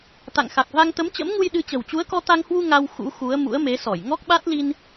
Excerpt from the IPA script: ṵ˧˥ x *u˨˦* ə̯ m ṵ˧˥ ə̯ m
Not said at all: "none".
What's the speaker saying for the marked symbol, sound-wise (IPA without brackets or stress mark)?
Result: u˨˦